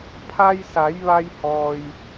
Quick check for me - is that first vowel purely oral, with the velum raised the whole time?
yes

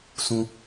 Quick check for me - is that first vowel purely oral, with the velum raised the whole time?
no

